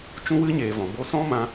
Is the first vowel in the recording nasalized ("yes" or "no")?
yes